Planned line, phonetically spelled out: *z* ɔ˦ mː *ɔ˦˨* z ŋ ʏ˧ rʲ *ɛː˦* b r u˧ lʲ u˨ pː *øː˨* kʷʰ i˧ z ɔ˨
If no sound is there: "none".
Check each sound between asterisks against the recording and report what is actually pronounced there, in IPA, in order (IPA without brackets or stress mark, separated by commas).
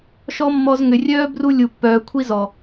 ʃ, ɔ˧, œː˦, œː˨